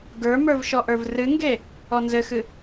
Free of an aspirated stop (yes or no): yes